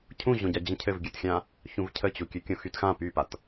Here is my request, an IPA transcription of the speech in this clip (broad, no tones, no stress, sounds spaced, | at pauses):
cʰ ũ ʑ õ ɟ a d͡ʑ ə̃ cʰ ɘ v ɡʲ ʉ t xʲ ã | ç ũ v cʰ ə t͡ɕ u kʲ ʉ kʲ õ x y t x ã p y p a t